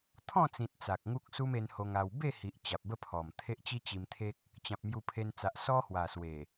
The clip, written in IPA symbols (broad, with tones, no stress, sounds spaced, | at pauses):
t̪ʰ ɔ̃˥˧ t͡s ĩ˨ t̚ t͡s a˨ k̚ ŋ u˦ k̚ s u˦ m e˧ n h o˧ ŋ a˧ w b e˥˧ h i˨ ʔ t͡ɕ a˨ p̚ b ə˥˧ pʰ ɔ˨˩ m t̪ʰ e˦ ʔ t͡ɕ i˦ t͡ɕ i˧ m t̪ʰ e˦ k̚ | t͡ɕ ã˨ p̚ m j u˧ pʰ e˧ n t͡s a˨ ʔ s ɔ˦ h w a˨˩ s w e˨˩